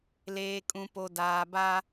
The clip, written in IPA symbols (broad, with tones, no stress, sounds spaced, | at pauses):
l eː˨ kʼ ũ˨ p o˨ d aː˨ b a˦